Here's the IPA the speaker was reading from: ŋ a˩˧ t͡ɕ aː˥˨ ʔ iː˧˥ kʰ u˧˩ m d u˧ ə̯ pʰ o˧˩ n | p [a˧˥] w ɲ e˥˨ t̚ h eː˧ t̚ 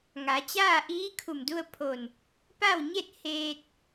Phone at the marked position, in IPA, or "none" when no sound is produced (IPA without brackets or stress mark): a˥˨